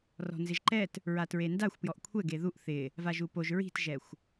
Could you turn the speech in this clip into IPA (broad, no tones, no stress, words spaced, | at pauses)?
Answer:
rɔ̤nzɪʒǃɛt | ɹatɹendaxʷ pjɔʔkʷʰɛ ɡeðuʔ θɪ | vaʒupoʒ ɹi̤tʒɛxʷ